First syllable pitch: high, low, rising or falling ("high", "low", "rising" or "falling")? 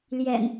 low